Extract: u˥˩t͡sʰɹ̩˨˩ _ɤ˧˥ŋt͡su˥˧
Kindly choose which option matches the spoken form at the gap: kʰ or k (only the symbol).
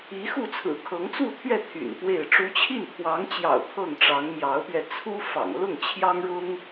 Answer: kʰ